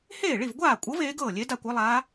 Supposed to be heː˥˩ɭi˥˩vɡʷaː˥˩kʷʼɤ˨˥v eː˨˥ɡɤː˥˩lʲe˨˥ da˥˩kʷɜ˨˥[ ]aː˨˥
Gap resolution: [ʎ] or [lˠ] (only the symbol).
lˠ